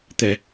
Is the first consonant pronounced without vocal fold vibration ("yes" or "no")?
yes